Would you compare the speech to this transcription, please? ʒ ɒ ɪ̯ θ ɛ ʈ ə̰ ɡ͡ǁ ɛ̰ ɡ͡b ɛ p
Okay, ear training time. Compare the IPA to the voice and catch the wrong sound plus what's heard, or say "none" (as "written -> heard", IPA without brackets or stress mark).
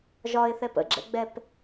ʈ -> p